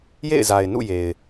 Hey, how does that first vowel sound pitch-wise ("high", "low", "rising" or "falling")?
falling